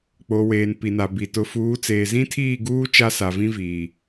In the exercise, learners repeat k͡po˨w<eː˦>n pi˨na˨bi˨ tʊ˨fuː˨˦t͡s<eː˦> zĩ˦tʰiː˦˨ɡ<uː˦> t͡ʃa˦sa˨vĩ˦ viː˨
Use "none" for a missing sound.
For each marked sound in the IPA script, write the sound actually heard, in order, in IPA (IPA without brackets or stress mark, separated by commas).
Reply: eː˨, eː˨, uː˦